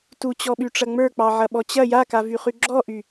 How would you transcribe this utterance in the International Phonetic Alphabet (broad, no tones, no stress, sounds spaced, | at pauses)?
t u t͡ɕ ɔ ɓ y ʈ͡ʂ ɐ ŋ͡m ə˞ k͡p ɑ ʕ ɐ ɓ ɔ t͡ɕ ɐ j a k a v y χ y ɡ͡ǁ ɔ ʔ y